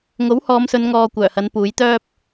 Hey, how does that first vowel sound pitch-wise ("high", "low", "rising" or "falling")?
rising